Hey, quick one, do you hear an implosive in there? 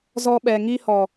yes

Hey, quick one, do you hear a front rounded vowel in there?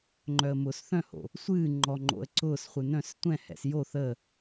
yes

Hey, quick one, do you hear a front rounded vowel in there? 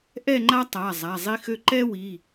yes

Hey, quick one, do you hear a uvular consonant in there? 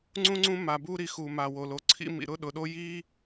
no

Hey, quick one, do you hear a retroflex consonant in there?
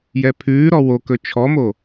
no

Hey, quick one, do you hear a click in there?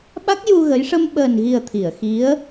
no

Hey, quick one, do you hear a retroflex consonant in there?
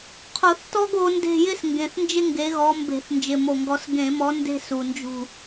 no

